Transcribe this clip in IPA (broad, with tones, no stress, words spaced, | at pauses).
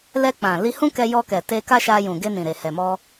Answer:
lɛ˧k͡pã˨ li˧ hũ˦kɛ˧jɔ˧kɛ˨ te˧ka˦ʃa˧jũ˨ ɡe˧nĩ˨ɾe˨ hɛ˨mɔ˧